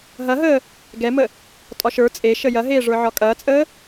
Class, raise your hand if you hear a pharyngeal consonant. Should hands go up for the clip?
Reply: yes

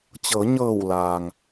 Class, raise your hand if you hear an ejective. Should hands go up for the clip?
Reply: no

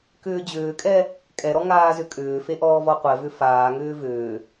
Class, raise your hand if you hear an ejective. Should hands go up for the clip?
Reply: yes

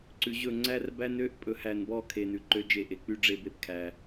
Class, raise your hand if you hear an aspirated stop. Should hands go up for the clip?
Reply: yes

